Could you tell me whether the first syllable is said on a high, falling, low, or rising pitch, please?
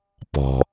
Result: low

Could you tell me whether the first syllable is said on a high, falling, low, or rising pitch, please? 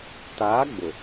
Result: rising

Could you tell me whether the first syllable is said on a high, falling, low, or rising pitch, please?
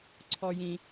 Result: low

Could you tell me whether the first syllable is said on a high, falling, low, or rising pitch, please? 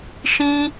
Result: high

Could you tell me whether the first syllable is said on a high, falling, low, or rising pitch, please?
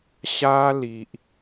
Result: high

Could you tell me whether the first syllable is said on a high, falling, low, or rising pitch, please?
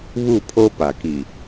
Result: falling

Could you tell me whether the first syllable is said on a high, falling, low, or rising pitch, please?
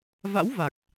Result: rising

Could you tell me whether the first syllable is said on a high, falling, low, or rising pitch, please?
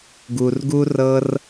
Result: low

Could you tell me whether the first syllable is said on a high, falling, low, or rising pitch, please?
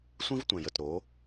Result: high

